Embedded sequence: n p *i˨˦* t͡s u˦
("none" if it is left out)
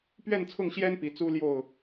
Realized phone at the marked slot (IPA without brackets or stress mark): i˨˦